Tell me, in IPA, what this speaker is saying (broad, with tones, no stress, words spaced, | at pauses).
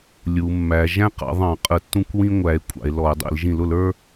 lʲu˩˧mːæ˩˧ ʒæ̃˦qɑ̰˩˧ðˤɑ̃˧˩˧ qʼə˧˩˧tːũ˦kʷwĩ˦ ŋʷæ˩˧e̯ kʷʼɑ̰˩˧e̯lɔ˧˩˧e̯dˤḭ˧˩˧l ʒĩ˧˩˧lʊ˧˩˧l ə˞˦